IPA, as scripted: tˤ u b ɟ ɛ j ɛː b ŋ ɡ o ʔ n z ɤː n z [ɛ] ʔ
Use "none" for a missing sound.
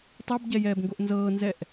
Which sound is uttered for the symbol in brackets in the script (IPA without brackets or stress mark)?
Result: ɛ